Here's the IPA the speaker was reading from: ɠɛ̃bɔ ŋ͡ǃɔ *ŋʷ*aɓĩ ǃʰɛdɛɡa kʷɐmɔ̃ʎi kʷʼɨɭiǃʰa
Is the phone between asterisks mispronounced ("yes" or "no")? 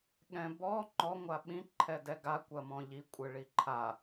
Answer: no